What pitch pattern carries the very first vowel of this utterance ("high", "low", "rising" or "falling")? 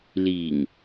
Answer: low